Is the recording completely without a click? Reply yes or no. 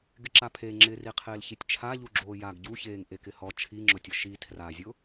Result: no